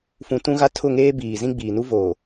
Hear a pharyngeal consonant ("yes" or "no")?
no